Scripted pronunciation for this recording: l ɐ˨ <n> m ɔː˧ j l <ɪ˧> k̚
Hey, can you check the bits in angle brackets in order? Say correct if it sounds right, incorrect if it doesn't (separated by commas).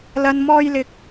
correct, correct